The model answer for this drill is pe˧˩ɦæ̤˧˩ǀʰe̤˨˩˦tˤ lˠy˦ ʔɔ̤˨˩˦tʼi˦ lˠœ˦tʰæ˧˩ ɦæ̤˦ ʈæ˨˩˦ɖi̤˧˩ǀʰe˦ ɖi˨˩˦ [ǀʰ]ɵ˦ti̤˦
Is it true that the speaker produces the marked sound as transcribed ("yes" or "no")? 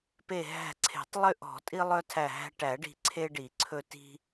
yes